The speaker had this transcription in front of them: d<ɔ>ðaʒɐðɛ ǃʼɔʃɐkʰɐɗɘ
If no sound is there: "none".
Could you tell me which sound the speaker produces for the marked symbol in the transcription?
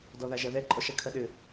ɔ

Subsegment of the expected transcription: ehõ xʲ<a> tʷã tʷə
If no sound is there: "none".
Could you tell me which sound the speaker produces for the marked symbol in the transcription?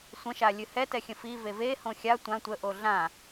a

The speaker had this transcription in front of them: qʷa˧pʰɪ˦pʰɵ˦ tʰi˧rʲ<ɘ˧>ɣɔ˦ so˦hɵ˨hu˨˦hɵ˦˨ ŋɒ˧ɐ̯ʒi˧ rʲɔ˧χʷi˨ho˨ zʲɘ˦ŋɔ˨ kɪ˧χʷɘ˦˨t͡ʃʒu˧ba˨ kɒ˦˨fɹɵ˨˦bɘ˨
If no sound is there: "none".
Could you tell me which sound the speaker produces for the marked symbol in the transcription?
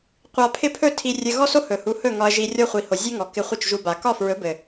ɘ˧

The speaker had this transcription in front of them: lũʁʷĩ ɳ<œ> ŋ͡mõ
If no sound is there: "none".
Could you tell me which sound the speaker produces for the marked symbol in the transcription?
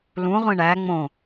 æ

